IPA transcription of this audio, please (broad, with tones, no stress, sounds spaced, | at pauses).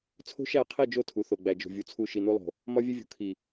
t͡sʰ o̤˦ ʃ æ˦˨ qʰ i˦˨ d͡ʒ o˦˨ tʰ u˨ θ o˨ ɡ͡b æ˨ d͡ʒ o̤˨ vʲ u˨ t͡sʰ u˦˨ ʃ i˨ n u˦ lˠ o̤˨ | m ɒ˦ vʲ e˦ vʲ o̤˨ kʰ i˨